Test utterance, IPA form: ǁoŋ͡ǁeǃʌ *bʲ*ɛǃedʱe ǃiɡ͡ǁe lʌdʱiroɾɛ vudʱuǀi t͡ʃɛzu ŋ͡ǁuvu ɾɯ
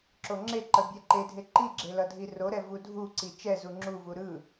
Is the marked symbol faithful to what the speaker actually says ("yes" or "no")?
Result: yes